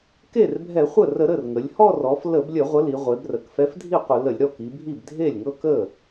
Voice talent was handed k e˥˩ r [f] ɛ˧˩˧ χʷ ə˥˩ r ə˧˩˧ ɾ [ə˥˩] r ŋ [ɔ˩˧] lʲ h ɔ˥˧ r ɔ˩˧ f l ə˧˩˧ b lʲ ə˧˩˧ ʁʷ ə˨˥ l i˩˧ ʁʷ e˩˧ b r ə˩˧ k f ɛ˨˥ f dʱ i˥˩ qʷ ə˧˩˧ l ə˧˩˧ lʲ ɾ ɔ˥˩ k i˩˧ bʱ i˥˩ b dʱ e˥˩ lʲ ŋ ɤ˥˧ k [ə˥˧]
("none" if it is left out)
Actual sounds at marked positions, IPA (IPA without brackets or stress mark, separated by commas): bʱ, ə˥˩, ə˩˧, ə˥˩